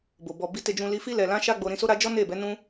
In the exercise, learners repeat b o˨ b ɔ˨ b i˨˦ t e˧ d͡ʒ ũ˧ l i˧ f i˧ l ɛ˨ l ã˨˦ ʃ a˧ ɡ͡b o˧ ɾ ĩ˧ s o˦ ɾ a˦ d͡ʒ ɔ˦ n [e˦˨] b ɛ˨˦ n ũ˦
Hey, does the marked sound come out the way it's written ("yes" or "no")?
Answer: yes